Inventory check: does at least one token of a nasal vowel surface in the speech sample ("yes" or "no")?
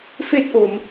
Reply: no